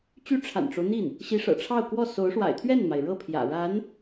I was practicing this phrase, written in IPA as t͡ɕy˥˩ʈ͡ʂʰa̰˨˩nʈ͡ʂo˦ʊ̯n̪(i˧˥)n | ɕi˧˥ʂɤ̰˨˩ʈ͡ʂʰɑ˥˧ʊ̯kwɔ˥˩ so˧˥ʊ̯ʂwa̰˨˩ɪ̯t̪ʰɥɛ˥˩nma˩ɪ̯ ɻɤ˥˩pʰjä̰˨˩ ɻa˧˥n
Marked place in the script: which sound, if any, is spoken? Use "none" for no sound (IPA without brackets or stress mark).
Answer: i˥˩